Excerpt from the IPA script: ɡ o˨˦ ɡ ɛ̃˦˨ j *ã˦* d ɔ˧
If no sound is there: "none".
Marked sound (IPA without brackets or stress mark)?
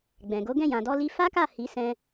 ã˨